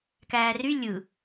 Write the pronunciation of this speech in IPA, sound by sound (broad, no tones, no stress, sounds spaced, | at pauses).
k æː r y lʲ ɯ